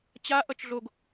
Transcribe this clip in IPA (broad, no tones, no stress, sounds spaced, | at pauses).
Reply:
t͡ɕ a ʔ ʌ t͡ʃ ɮ o ɡ